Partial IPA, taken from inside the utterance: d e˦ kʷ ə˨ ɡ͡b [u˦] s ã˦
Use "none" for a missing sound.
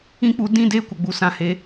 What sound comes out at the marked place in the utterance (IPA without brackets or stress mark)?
u˦